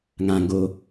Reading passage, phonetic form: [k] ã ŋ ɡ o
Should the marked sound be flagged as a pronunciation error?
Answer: yes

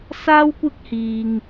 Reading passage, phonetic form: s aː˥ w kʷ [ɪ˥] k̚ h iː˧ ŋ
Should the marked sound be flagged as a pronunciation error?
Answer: no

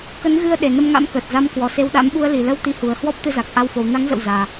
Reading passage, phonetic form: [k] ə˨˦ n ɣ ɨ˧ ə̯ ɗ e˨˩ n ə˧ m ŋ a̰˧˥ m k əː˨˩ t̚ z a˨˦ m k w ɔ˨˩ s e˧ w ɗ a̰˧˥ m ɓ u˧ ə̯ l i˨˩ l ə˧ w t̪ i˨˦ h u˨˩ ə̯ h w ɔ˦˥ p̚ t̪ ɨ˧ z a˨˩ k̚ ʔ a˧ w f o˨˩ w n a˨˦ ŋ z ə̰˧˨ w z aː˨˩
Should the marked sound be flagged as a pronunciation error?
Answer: no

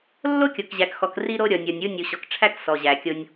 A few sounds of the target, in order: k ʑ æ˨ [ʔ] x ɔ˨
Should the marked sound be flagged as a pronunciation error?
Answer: yes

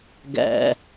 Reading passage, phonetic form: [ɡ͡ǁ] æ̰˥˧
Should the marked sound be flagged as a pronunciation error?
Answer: yes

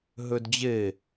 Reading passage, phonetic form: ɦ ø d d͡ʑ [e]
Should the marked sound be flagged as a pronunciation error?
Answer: no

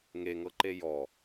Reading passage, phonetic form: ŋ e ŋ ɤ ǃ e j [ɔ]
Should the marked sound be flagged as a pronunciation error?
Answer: no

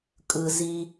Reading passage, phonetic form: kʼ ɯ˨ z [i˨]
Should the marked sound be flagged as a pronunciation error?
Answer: yes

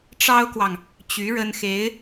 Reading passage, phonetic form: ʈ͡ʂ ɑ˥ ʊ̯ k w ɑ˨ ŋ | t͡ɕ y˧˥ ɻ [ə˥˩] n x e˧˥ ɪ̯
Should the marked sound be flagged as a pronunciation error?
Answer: yes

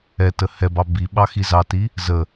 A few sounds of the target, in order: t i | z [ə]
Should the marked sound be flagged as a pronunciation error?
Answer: no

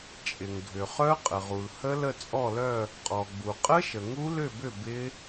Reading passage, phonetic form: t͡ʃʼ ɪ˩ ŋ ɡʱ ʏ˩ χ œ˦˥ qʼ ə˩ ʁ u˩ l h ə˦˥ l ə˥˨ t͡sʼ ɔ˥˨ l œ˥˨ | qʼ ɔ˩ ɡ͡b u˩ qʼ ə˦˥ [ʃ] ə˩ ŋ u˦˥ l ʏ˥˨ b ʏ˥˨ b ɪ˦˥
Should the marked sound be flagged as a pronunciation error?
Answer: no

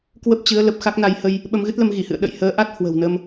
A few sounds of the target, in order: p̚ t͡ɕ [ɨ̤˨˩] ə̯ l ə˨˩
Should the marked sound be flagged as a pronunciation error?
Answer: yes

